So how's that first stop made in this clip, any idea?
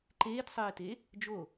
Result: click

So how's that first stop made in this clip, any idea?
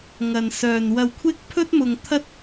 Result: aspirated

